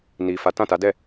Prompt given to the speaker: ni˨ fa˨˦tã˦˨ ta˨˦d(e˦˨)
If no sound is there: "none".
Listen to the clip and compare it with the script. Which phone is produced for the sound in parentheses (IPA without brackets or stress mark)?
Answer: ɛ˦˨